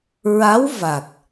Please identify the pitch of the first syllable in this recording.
rising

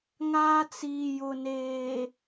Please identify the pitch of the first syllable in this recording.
high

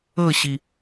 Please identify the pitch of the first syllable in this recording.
falling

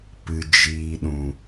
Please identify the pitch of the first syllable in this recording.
low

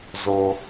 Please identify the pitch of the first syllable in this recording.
low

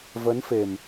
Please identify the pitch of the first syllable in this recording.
rising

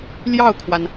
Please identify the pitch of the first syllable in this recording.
falling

